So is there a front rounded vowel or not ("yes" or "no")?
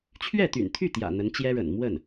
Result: yes